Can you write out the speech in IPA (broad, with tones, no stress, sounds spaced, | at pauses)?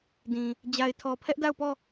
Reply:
d ĩ˨ | d͡ʑ a˨ ɪ̯ tʰ ɔ˨ pʰ ɛ˦ ʔ d a˦˨ ʊ̯ p ɔ˦˨